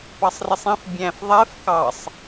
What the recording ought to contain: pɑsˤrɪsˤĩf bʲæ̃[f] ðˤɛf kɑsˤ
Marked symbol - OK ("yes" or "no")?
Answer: yes